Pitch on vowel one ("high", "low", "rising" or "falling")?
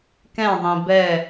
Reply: falling